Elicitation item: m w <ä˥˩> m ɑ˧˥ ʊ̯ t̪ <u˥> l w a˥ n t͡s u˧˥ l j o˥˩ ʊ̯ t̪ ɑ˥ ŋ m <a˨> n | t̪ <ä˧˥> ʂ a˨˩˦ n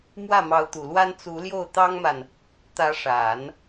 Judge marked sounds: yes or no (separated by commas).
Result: yes, no, yes, yes